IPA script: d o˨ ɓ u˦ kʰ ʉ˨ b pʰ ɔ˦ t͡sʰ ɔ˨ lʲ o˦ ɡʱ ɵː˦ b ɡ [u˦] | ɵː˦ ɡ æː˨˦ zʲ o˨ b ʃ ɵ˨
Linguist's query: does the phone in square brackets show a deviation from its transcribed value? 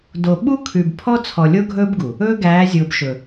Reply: yes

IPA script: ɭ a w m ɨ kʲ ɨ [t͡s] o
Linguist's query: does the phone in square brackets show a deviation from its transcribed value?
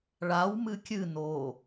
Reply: yes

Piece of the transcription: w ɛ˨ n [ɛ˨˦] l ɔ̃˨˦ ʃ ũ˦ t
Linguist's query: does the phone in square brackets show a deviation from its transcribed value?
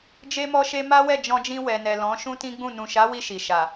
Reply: yes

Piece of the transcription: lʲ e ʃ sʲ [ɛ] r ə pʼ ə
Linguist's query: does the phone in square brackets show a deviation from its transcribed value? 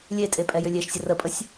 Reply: yes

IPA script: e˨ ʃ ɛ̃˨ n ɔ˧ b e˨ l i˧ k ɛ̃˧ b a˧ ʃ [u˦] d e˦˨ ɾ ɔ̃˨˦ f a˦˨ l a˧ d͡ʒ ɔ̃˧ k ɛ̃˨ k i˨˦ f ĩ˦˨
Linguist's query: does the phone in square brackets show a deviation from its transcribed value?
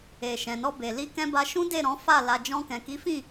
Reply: yes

